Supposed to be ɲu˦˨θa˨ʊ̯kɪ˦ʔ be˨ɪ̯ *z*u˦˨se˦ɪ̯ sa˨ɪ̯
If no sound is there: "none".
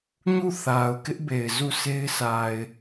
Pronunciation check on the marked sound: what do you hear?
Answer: z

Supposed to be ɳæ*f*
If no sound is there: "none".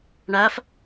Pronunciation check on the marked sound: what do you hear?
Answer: f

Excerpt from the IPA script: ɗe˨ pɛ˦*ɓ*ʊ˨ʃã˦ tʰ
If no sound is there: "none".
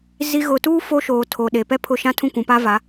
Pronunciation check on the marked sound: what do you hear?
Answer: pʰ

